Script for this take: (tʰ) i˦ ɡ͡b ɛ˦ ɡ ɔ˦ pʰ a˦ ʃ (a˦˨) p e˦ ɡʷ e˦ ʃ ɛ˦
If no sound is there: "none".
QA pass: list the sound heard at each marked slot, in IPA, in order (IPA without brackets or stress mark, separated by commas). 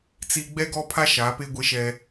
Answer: t͡s, a˨˦